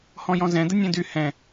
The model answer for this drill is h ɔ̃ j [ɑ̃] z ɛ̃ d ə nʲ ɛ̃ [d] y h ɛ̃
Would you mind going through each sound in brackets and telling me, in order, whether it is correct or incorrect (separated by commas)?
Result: incorrect, correct